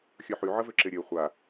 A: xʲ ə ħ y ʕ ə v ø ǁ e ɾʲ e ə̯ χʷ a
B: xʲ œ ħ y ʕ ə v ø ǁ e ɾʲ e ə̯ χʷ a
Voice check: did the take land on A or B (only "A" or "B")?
B